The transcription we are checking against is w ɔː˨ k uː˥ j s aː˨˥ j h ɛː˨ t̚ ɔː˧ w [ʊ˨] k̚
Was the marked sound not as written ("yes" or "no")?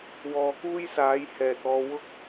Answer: yes